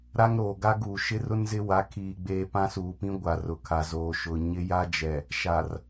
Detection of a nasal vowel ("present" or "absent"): present